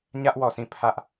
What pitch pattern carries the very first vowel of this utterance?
high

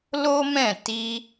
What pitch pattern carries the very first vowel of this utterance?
high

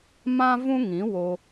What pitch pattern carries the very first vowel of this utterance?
high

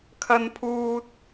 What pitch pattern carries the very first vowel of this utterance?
high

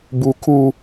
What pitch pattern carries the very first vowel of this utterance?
high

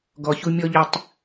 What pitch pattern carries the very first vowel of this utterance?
low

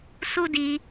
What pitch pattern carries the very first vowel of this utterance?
high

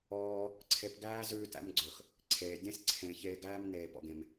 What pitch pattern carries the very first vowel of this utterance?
high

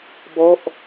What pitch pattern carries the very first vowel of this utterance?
falling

